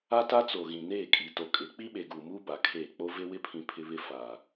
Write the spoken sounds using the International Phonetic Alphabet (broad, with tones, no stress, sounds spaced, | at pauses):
a˦ t a˦ t͡s o˨ ɣ ĩ˨ n eː˦˨ kʼ i˨ t o˨ kʼ ɪ˨˦ k͡p i˦ ɓ e˨ ɡ uː˨ m uː˦ b a˨ kʰ eː˦˨ k͡p o˦ v e˦ w ɪ˦ pʰ ĩ˨ pʰ ɪ˦ β ɪ˦ f a˨